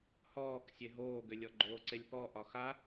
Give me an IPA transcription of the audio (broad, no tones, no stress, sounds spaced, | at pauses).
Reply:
h ɔː k sʲ e ɦ oː ɡ ʏ lʲ ɔ ɡ͡ǃ oː ǀ e lʲ p ɔ ʔ ɒ x a